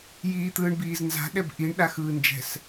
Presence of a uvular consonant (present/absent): absent